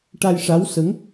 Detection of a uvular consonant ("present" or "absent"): absent